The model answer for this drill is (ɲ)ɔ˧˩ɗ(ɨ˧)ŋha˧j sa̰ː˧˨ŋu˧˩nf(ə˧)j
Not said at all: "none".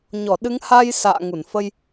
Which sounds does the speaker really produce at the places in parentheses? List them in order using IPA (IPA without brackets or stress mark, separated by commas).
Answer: ɲ, ɨ˨˦, ə˧